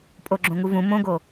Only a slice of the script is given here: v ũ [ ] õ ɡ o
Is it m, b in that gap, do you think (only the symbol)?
m